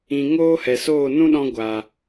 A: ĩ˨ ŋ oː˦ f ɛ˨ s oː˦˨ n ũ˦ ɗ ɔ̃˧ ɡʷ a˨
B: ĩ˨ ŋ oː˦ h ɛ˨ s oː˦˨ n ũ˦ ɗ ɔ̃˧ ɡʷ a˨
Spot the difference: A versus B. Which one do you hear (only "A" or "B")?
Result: B